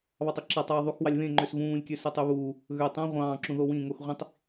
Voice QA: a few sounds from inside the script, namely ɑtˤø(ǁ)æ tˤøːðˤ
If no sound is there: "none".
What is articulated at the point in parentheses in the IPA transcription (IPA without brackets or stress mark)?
ǁ